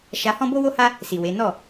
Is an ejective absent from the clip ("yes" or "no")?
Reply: yes